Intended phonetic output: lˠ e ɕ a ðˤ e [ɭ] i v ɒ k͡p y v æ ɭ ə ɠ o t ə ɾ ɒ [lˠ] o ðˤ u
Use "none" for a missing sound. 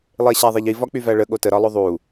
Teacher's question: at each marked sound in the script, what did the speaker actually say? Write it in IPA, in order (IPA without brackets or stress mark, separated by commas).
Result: ʎ, lˠ